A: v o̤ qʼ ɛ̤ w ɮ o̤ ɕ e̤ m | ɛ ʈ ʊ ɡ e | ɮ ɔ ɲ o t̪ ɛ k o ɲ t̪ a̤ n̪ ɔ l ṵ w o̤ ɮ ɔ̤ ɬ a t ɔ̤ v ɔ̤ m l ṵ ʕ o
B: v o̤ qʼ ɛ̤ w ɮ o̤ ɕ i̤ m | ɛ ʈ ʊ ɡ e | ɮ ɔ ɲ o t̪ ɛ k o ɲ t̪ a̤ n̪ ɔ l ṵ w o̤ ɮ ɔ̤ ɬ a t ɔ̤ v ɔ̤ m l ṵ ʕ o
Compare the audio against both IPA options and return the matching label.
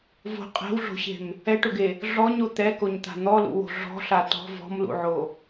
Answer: A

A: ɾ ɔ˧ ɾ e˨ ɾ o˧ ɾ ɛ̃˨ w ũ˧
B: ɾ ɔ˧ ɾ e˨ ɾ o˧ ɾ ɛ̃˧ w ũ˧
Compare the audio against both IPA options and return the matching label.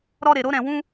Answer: A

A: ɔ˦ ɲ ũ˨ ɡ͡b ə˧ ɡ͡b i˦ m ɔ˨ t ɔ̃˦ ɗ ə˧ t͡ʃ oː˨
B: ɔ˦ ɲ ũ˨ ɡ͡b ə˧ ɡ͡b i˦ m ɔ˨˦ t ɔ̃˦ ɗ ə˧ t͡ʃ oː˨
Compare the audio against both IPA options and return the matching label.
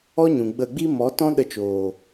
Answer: B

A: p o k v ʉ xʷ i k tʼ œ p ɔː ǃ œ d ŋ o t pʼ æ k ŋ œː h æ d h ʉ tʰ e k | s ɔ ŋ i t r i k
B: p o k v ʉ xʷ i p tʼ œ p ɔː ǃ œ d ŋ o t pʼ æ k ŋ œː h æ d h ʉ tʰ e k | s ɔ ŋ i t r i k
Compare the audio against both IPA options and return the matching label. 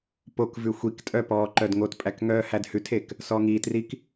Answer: A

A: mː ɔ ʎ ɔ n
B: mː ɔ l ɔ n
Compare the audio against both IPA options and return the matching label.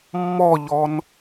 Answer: A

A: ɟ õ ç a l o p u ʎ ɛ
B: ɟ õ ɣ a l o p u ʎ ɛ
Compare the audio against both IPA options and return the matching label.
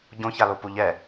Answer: A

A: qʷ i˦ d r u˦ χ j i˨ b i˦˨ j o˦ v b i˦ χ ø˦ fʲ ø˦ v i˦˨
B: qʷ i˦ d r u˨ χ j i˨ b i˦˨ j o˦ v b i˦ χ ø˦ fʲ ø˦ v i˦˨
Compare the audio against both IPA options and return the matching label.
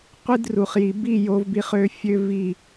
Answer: B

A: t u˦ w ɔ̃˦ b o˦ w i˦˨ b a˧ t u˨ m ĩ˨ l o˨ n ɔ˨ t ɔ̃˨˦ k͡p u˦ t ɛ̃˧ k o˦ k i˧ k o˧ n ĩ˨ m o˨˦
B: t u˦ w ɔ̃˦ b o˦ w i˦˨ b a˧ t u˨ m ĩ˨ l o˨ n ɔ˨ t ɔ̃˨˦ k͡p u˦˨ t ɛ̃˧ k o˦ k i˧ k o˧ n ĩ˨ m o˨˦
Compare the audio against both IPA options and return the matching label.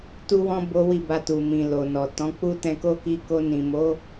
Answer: A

